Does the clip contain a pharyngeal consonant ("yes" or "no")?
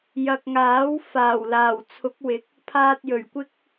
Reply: no